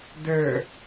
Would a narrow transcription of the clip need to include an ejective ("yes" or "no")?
no